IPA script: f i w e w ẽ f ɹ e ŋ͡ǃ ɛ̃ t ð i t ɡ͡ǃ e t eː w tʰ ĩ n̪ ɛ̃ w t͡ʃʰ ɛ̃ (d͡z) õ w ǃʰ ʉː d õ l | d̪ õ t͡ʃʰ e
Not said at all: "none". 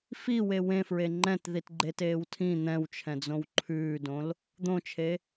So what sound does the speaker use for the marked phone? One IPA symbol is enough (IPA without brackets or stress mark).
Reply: d͡z